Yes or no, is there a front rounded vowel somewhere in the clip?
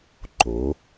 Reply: no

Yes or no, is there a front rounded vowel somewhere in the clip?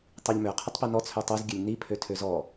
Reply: yes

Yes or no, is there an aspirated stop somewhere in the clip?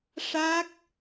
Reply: no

